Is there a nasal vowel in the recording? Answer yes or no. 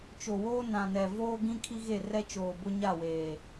yes